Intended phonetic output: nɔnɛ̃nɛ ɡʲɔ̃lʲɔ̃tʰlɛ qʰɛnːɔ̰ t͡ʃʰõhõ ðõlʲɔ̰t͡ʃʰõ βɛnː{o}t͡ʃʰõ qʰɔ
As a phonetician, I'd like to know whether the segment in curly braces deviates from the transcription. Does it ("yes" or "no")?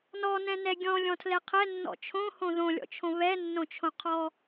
yes